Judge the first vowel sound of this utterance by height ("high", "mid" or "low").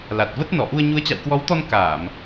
low